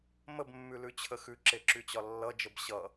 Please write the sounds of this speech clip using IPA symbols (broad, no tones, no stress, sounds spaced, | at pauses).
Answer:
m ə b mː ʉ l ʉ t͡ɕʰ ə x ʉ ǁ e ǁ y t͡ɕ ɒ lː ʌ d͡ʒ ə b ɕ ʌ